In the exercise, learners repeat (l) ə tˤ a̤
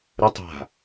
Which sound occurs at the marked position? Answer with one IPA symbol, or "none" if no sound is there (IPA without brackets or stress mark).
ɾ